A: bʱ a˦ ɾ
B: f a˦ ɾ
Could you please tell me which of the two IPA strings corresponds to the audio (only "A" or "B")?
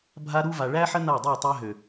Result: A